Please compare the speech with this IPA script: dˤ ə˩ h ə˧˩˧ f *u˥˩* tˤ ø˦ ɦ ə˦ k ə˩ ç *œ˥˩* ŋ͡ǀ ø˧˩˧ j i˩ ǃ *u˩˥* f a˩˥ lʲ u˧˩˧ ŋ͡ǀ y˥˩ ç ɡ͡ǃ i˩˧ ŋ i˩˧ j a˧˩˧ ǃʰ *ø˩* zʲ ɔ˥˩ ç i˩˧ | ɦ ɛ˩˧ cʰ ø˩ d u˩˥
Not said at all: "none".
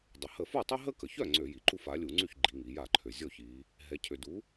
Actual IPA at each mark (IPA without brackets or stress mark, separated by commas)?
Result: u˥˩, œ˥˩, u˥˩, ø˩